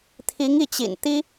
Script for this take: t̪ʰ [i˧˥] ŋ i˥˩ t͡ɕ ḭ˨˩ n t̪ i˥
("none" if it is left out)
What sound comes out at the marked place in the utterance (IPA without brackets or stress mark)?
i˧˥